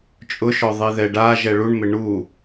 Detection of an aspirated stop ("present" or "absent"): absent